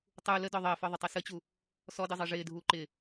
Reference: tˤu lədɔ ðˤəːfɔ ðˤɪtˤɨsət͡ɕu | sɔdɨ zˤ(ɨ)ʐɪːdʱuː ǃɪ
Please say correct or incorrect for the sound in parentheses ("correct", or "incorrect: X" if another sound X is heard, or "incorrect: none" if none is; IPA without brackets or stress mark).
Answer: correct